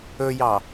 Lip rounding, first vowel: rounded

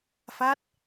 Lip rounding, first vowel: unrounded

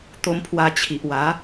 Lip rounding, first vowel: rounded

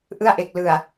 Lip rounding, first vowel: unrounded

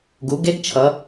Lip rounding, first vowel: rounded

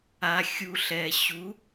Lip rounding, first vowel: unrounded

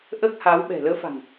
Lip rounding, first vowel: unrounded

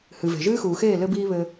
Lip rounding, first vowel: unrounded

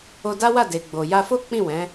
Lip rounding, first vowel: rounded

